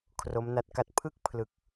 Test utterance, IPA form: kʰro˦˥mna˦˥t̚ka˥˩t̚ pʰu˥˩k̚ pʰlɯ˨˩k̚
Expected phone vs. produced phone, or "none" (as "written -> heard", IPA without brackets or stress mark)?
u˥˩ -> ɯ˥˩